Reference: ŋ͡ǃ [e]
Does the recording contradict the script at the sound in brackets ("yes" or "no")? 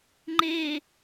no